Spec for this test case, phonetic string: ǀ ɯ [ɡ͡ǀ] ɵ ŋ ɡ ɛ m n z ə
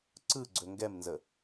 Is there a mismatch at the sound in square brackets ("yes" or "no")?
no